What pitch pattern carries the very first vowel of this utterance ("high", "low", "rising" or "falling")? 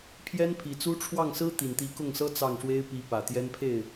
high